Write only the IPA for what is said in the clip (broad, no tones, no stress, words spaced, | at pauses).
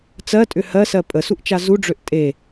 t͡sɜtʼʏ hɜsɜ pʼəsuʔt͡ʃa zuɖ͡ʐøʔ tʼe